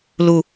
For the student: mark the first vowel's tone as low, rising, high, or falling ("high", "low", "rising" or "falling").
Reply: low